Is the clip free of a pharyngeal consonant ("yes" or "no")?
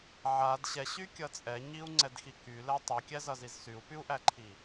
no